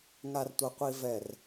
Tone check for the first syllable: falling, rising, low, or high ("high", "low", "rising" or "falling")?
low